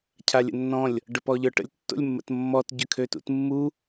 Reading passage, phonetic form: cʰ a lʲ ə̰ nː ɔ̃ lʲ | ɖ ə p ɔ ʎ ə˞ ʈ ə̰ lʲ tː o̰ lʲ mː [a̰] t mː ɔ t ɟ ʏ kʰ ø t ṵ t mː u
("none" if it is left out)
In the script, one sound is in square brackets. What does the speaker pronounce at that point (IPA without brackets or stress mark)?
ə̰